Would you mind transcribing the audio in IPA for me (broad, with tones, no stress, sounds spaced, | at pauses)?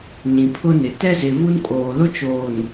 ɲ ĩ˨ pʰ ʊ˦ n ɪ˨ t ɛ˦ z ɪ˨ v u˦ n kʼ oː˨ l ʊ˦ t͡ʃ oː˨ n